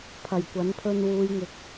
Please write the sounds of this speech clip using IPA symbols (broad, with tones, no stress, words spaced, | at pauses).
pʰɐ˨˩jkʷɐ˨˥n pʰɵ˧nwuː˨˧jŋɪ˨˥k̚